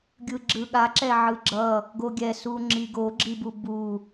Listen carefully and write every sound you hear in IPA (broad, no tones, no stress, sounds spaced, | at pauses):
ɡʲ ɯ ɡ͡ǁ ɯ ɠ a ǁ ɛ ʕ ɯ ɡ͡ǁ ʌ | ɡ o ɡʲ ɛ s u ŋ͡ǁ i ɡ o ɡ͡ǁ i b u b u